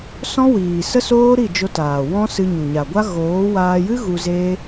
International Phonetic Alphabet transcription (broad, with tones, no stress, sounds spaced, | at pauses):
s ɔ̃˦ w iː˨ s ə˦ s oː˦ ɾ i˦˨ d͡ʒ o˧ t aː˨ w ɔ̃˦ s ɨ˧ ɲ u˨ ɲ a˨ ɡʷ a˦ ɣ oː˨˦ w aː˧ j ɨ˦ ɣ u˧ z eː˦